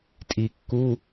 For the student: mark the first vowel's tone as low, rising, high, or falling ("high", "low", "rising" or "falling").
low